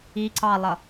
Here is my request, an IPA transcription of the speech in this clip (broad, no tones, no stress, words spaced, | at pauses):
i ǀɑlˠʌ